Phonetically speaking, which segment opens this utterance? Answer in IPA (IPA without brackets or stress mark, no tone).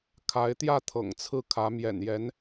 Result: kʰ